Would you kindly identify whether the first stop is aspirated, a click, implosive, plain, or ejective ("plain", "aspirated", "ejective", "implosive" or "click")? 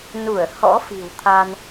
aspirated